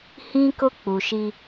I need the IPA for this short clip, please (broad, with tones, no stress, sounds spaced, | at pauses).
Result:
h ĩ˦ k ʊ˦ k͡p u˨ ʃ i˦